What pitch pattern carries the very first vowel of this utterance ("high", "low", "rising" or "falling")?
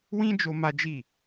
high